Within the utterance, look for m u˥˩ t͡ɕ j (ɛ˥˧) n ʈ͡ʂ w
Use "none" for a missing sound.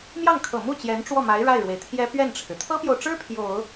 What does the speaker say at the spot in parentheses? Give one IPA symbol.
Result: ɛ˧˥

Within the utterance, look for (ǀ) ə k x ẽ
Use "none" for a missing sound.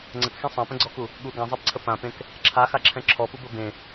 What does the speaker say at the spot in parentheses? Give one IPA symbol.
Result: ŋ͡ǀ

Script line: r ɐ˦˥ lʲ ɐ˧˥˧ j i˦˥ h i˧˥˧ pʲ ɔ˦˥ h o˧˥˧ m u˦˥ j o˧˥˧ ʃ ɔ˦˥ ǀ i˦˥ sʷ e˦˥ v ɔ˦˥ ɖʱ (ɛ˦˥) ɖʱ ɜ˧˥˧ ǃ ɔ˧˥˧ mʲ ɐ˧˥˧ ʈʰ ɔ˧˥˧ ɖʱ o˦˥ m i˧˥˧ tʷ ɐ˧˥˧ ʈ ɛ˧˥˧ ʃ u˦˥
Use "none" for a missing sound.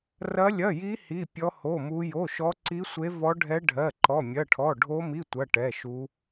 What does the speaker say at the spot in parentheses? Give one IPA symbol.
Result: ɛ˦˥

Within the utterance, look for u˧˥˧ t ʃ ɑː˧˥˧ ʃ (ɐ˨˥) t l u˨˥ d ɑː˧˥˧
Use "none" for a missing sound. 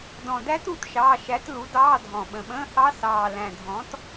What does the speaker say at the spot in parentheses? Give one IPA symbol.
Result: æ˨˥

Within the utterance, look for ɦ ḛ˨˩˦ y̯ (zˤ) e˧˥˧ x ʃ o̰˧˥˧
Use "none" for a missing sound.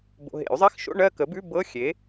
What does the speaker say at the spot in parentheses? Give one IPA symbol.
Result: zˤ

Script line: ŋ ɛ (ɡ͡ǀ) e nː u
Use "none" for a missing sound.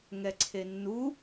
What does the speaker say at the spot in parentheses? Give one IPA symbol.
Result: ǀʰ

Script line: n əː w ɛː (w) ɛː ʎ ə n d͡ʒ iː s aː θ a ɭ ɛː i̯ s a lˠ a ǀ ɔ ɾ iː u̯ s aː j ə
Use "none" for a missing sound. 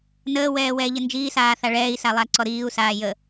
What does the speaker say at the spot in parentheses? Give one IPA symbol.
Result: w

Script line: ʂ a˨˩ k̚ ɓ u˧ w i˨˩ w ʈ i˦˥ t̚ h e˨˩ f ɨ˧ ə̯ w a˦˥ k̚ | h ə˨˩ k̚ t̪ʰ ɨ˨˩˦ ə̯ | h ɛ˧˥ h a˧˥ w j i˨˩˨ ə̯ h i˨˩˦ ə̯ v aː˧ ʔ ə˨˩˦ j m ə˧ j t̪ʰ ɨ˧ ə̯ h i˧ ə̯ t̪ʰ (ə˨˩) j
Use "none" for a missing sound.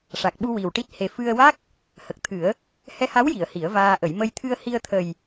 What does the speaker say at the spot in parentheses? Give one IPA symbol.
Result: ə˨˩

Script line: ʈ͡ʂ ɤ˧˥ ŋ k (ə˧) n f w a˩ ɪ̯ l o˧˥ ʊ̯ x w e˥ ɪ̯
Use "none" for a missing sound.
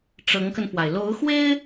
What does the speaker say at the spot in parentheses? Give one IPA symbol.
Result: ə˧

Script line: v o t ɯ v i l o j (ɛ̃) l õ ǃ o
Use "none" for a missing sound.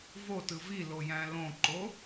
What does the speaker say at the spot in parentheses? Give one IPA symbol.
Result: æ̃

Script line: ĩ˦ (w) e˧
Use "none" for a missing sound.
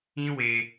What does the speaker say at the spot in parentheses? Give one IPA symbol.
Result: w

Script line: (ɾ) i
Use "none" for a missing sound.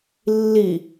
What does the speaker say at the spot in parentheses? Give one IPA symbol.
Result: lː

